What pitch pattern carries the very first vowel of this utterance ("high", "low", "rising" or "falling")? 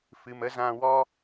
low